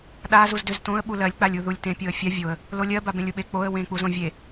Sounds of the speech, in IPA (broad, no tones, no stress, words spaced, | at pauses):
ɗa zuzdʏz tõə̯ ɓulɜlʲ k͡palʲuðulʲtẽ pʲoə̯fʲa vʲoə̯ | lolʲɜ babẽlʲuɓe k͡poə̯ wẽ k͡puzõvʲe